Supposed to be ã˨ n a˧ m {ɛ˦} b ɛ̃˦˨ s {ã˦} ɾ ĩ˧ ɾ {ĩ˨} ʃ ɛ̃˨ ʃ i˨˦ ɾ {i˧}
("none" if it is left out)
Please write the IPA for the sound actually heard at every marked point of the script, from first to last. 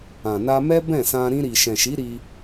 ɛ˦, ã˧, i˨, i˧

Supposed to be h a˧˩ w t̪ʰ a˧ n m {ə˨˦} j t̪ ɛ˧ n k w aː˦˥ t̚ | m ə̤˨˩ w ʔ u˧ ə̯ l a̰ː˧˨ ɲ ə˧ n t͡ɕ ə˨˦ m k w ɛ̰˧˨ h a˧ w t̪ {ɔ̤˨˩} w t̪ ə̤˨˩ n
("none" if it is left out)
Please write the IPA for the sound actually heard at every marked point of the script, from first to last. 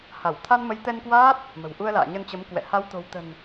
ə˨˦, o̤˨˩

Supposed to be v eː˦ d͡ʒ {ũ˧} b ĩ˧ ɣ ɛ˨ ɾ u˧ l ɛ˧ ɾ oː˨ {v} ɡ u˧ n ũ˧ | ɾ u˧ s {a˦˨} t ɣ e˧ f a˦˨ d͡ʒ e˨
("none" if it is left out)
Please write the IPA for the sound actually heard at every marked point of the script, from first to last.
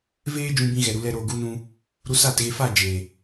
ũ˧, none, a˦˨

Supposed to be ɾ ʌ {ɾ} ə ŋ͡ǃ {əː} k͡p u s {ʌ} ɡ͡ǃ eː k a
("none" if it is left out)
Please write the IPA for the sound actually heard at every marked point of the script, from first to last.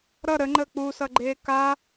ɾ, əː, ʌ

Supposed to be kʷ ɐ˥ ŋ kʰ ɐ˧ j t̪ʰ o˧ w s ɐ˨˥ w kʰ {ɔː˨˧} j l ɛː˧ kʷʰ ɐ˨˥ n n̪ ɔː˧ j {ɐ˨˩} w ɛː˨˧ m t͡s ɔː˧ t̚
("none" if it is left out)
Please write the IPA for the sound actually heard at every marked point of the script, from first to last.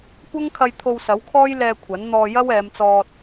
ɔː˥, ɐ˥

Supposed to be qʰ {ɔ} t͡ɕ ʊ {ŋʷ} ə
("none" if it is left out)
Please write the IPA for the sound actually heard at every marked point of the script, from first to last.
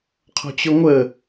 ɔ̤, ŋʷ

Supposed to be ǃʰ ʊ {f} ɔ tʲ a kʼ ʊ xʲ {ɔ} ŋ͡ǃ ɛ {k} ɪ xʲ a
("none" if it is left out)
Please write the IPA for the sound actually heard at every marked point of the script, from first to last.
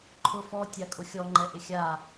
f, ɔ, ʔ

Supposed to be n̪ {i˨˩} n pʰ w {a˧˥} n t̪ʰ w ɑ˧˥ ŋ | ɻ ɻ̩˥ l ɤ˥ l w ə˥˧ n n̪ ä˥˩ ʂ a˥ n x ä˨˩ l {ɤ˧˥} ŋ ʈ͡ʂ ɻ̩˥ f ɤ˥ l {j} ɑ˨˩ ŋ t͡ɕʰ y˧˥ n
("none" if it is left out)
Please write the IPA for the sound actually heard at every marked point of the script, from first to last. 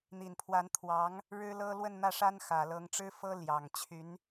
i˨˩, a˧˥, ɤ˧˥, j

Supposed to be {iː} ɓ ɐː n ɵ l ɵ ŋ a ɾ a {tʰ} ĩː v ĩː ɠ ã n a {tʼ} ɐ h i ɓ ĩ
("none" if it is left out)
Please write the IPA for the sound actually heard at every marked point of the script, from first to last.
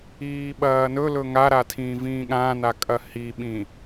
iː, tʰ, kʼ

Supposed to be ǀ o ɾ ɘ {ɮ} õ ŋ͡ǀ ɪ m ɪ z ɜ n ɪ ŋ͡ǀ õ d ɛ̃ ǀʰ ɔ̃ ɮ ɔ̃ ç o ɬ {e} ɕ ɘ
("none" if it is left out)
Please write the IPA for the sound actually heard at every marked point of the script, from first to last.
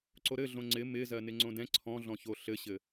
ɮ, ɘ

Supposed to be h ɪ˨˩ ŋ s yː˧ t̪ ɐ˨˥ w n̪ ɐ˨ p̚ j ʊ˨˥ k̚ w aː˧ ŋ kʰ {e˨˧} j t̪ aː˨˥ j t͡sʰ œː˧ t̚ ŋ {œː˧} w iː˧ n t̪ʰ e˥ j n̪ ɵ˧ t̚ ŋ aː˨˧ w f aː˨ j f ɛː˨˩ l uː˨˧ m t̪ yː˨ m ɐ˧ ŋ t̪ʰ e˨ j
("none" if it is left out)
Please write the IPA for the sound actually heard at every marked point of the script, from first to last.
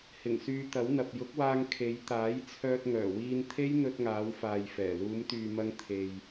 e˨˧, œː˨˩

